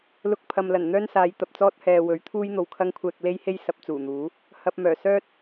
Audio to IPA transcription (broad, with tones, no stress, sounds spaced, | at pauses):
l ʊ˧ k̚ pʰ ɐ˨ m l ɐ˨˩ n n̪ œː˥ n s aː˨˧ j t̪ ɐ˨ p̚ t͡s ɔː˥ t̚ h ɛː˨ w ɵ˨˥ ɥ t̪ʰ uː˥ j n̪ o˨ w kʰ ɐ˥ ŋ kʷʰ ɛː˧ k̚ l e˥ j h e˥ j s ɐ˨˥ p̚ t͡s uː˨˩ n̪ uː˨˥ | h ɐ˨ p̚ m œː˨˩ s œː˥ t̚